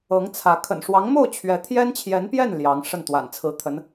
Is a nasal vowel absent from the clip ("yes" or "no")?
yes